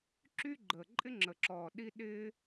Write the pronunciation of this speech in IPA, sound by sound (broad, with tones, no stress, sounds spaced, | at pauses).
ǁ y˥ ɡ͡ǃ əː˨˩ ǃʼ ɪ˥ ŋ͡ǁ ə˨˩ ǁ ɔː˨˩ ɗ i˥ ɗ ɪː˥